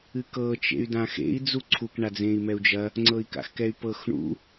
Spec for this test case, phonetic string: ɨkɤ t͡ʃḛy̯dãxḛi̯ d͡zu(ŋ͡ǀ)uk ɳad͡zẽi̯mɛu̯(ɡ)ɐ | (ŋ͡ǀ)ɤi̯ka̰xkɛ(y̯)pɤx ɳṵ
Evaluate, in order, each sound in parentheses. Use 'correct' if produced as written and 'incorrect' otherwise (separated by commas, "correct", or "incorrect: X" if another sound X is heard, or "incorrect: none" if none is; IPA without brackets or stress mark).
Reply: incorrect: ǀʰ, incorrect: d͡ʒ, correct, correct